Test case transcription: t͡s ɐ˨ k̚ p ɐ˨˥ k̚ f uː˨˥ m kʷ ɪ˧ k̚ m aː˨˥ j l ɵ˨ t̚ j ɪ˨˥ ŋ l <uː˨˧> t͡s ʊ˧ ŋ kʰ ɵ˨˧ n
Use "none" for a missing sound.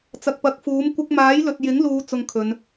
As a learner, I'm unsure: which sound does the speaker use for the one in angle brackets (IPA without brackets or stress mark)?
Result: uː˨˧